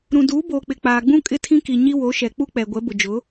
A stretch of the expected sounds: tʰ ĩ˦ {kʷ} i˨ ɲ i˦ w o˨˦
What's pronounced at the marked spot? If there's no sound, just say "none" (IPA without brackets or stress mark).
k